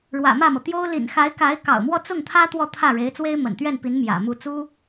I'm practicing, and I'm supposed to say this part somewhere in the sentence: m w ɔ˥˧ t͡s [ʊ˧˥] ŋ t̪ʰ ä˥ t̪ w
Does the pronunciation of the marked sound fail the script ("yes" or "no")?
yes